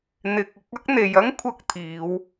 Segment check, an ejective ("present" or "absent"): absent